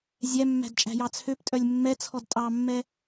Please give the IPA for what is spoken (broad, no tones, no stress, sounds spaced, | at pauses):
zʲ æ mː æ̤ d t͡ʃʼ æ̤ j ɑ t͡sʰ ø p tʼ œ lʲ mː ɛ t͡sʰ ɔ d tʼ ɑ mː ɛ